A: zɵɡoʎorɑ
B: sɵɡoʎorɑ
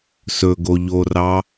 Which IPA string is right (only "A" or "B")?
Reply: B